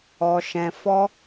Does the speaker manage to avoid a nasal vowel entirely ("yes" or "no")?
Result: no